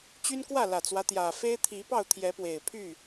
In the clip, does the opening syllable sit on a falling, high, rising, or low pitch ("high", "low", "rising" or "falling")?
high